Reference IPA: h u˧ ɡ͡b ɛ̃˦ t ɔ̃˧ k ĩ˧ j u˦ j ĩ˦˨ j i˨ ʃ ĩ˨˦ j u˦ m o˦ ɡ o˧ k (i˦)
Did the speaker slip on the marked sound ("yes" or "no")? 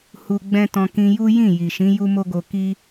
no